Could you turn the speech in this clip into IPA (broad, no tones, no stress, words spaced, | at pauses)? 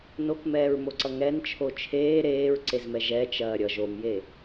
nokmɛːɹmoǀʌ ŋɛnt͡ʃʰo t͡ʃʰeː ɾeːɹǀezmɛ ʒɛt͡ʃɐː ɾʲʌ ʒomje